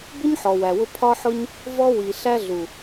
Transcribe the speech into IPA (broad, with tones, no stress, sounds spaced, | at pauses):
b ʊ˦ ɲ ħ ɔ˨ w æ˨ w ʊ˧ pʰ ɒ˦ ħ ʊ˦ ɲ | v ɔ˧ w i˨ ɬ æ˧ ɮ u˨